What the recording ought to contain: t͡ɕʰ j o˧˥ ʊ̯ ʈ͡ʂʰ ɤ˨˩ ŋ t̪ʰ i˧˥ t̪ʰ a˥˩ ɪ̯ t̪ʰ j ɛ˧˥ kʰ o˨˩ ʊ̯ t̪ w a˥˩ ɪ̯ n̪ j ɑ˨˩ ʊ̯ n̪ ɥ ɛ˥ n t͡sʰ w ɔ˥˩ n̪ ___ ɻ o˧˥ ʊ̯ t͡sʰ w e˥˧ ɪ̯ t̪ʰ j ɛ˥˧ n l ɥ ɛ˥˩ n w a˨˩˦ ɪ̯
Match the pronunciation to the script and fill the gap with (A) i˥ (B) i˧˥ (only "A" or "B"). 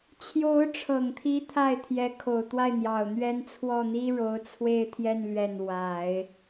A